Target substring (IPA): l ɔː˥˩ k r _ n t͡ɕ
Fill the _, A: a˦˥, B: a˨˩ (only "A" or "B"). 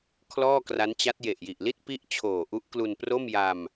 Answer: A